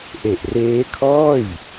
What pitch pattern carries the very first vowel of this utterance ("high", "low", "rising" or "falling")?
low